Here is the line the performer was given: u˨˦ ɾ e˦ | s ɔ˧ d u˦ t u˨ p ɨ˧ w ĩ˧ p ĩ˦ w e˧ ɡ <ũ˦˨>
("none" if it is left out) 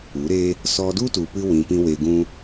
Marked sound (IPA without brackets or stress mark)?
ũ˦